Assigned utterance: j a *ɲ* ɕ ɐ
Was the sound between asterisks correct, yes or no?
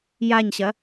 yes